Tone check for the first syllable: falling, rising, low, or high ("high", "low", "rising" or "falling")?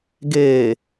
low